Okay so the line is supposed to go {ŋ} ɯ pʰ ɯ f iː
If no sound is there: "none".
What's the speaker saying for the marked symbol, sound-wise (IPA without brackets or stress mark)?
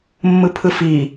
mː